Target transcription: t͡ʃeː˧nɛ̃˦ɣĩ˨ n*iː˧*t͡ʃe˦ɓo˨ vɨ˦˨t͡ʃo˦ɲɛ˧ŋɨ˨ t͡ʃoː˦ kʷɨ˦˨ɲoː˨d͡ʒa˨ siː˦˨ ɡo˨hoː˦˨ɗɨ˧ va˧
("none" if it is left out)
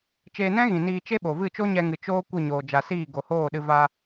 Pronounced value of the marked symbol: iː˧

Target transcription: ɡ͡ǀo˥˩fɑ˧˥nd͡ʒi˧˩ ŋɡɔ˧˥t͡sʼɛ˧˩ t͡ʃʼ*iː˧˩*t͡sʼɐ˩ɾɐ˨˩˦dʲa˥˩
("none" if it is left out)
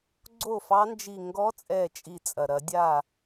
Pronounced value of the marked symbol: i˧˩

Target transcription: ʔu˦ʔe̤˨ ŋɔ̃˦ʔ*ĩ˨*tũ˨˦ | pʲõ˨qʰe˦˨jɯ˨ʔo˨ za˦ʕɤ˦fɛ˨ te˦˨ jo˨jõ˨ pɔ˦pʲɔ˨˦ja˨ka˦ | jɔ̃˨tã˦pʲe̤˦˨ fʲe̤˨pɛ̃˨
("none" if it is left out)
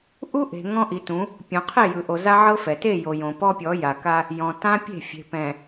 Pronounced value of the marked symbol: i˨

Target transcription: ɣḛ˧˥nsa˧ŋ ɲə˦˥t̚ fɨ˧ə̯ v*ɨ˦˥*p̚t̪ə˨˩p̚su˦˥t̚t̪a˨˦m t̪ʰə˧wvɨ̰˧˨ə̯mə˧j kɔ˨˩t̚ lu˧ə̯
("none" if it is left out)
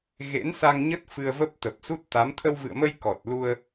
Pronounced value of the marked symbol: ə˦˥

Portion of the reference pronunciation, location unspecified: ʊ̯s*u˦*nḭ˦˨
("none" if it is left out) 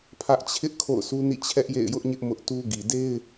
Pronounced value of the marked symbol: u˦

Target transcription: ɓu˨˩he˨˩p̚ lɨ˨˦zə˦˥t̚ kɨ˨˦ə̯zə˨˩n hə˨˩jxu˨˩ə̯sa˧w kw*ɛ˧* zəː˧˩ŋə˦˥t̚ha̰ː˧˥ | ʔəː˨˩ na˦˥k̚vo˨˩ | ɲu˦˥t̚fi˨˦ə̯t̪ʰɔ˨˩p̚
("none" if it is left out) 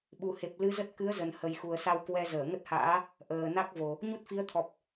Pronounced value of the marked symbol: ɛ˧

